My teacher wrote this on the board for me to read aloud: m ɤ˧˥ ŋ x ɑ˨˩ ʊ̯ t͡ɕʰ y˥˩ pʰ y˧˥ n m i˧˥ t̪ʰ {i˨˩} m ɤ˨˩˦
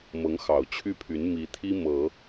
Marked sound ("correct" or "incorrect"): incorrect